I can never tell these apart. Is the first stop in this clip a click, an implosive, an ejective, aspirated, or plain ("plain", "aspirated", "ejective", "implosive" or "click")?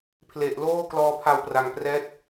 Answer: aspirated